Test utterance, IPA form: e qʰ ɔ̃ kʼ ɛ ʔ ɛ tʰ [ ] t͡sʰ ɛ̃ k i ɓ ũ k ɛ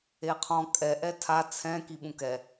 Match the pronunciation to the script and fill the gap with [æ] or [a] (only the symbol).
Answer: a